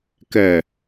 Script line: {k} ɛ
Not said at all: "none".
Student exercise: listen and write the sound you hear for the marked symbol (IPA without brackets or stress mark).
k